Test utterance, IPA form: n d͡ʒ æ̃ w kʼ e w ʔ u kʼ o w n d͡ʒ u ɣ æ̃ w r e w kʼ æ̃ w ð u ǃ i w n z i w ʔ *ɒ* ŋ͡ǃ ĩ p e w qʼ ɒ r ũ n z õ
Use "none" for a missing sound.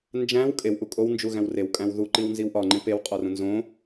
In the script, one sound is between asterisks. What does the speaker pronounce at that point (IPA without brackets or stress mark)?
ɒ